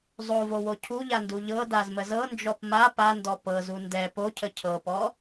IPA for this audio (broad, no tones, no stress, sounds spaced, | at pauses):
zˤ o v o w o cʰ u ʎ a n d u ʎ ɤ d a z m ə z ɤ n d͡ʒ ɔ p m a p a n d ɔ p ɤ z u n d ɛ p o cʰ ə cʰ ɤ p ɔ